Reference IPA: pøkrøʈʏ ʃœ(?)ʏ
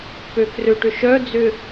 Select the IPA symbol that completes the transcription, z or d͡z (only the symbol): d͡z